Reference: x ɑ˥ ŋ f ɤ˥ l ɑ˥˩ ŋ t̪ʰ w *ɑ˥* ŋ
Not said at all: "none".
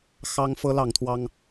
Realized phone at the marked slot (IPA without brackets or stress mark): ɑ˥